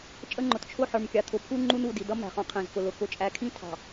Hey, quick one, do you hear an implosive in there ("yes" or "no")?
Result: no